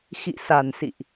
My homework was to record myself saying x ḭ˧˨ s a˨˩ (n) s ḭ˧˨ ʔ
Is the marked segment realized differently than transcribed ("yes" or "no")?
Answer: no